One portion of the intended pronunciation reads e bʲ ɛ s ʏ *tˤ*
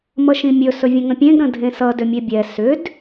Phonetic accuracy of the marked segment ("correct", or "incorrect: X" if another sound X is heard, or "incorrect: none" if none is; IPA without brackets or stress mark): incorrect: d